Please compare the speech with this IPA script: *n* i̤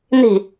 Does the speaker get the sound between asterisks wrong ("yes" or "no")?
no